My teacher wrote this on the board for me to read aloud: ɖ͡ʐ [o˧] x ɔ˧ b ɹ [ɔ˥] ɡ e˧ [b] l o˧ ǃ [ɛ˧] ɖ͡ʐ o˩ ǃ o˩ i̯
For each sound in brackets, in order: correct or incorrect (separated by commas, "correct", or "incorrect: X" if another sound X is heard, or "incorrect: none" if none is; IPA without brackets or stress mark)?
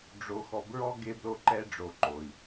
correct, correct, correct, correct